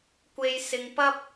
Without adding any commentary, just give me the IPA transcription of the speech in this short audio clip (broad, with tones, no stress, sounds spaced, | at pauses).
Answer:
kʷ e˧ j s ɪ˧ ŋ p ɐ˥ p̚